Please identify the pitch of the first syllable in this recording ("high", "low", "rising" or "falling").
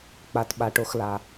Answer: low